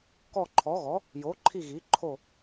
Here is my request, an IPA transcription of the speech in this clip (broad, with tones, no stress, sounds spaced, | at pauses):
k ɔ˦˨ ǃʰ ɔ˨˥ ɣ ɔ˨˥ | j o˨˥ ǃʰ i˦˨ ɣ i˨˥ ǃʰ o˦˨